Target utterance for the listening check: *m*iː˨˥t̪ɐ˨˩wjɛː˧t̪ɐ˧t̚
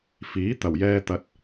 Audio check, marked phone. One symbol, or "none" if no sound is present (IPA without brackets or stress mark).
f